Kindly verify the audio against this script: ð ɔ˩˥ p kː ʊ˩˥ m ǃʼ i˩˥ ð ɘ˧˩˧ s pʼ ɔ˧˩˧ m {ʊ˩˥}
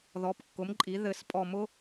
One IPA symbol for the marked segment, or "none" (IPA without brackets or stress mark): ʊ˩˥